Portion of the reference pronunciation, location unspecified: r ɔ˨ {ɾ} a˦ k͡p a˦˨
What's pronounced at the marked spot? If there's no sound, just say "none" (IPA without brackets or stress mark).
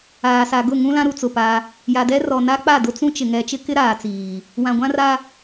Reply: n